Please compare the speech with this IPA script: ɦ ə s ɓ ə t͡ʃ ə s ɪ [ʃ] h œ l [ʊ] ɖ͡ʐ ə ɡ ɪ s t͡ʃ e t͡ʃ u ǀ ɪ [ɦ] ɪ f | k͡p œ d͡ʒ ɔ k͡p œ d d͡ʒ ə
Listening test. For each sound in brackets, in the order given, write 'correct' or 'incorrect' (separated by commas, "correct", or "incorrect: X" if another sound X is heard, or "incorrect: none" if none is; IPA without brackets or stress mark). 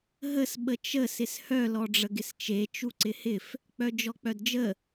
incorrect: s, incorrect: ɔ, incorrect: h